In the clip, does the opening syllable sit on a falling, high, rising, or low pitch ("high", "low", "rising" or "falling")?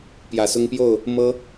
rising